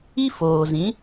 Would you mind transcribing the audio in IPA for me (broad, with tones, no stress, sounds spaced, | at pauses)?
i˦ f oː˨ z ĩ˨˦